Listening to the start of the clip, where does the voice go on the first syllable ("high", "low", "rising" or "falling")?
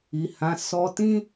low